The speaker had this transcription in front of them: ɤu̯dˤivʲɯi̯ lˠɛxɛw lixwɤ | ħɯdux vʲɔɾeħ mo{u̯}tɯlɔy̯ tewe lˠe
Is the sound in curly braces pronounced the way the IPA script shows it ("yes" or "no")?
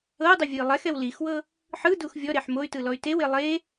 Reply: no